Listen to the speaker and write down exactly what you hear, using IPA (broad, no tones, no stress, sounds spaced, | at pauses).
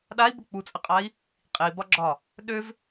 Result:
ɗ a i̯ b ə k͡p u t͡sʼ ə qʼ a i̯ | qʼ i b ɒ ɡ͡ǁ ɒ | ɗ ø v